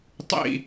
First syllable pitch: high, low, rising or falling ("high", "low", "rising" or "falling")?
falling